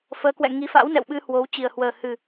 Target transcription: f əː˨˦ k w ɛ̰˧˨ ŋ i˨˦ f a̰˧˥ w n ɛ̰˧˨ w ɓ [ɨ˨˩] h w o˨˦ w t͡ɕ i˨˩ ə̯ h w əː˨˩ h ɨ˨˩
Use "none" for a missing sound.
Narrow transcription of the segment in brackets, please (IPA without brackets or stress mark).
ɨ˧